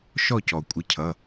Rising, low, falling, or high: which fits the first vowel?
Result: falling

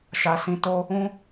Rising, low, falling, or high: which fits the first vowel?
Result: low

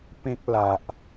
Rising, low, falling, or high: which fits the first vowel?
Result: high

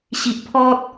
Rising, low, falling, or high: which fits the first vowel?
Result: low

